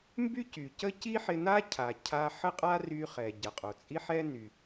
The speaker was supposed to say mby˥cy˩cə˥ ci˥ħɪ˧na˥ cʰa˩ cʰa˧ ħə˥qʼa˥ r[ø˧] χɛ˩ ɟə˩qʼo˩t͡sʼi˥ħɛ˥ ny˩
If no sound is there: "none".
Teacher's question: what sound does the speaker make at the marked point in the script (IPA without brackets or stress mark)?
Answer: y˧